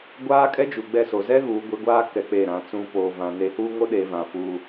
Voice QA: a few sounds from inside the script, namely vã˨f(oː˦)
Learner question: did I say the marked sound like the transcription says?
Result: no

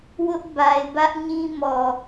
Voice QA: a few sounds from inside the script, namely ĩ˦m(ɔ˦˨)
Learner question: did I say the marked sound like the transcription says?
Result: no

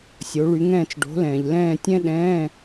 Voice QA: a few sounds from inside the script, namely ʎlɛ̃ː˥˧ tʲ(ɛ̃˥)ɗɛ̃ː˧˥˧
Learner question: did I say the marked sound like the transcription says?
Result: yes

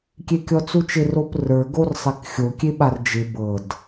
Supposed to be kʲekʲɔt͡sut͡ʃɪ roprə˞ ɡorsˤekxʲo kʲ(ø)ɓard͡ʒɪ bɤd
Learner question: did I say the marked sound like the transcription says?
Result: no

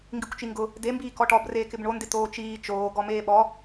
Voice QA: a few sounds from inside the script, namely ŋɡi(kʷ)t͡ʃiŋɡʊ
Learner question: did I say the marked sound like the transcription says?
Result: yes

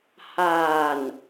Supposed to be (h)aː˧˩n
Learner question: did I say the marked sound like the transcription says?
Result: yes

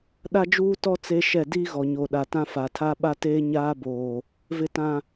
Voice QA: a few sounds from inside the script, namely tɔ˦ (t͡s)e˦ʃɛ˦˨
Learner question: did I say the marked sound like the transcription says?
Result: yes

